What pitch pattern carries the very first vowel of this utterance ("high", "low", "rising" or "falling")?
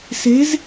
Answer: rising